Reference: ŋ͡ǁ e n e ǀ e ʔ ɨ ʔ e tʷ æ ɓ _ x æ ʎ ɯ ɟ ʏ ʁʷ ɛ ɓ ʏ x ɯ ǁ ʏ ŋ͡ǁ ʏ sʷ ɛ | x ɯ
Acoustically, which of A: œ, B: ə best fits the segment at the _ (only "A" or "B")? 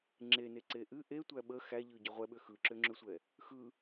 B